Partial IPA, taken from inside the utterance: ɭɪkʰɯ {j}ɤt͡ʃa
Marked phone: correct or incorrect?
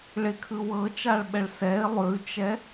incorrect